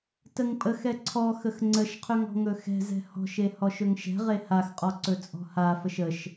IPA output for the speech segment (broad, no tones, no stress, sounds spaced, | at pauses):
t ə ŋ pʼ ə x ɛ ǀʰ ɔ x ə x ŋ͡ǀ ə ʃ qʰ ɵ ŋ ɔ̤ ŋ ɵ x ɛ̤ z ɛ̤ h ɔ̤ ʃ e h ɔ ʃ ɵ ŋ ʃ ɛ̤ ʁ e h a x qʼ ɔ ǀ ɵ t͡sʼ ɔ̤ h a f ə ʃ ə ʃ